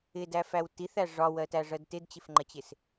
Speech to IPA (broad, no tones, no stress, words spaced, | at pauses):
ɪdæfæw tiθæ ʐɒwɜtæʐɜd tɪdt͡ɕɪfŋ͡ǃət͡ɕɪs